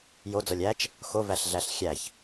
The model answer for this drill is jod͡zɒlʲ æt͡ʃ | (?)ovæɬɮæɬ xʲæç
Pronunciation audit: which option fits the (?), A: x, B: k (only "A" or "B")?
A